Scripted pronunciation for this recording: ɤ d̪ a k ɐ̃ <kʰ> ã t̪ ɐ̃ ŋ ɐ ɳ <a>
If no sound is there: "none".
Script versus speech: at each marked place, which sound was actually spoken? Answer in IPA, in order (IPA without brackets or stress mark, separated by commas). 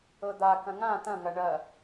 ŋ, ɐ